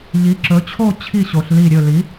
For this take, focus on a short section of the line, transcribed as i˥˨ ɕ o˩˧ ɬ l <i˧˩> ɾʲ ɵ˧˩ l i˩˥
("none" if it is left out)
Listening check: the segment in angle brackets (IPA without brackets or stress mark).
i˧˩